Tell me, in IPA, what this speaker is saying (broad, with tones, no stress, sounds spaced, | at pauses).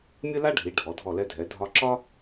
mʲ ə˥ l a˥ ɖʱ i˩˧ ɖʱ ɔ˩˧ dʱ ɔ˧˩ l ɛ˧ dʱ ɛ˩˧ dʱ ɒ˧ ǁ ɒ˥